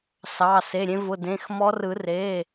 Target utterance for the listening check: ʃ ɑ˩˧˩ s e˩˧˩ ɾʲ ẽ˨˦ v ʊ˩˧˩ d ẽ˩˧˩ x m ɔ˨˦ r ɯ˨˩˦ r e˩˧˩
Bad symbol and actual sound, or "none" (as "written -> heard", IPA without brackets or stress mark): ʃ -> s